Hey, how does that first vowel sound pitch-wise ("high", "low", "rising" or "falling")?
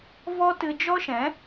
high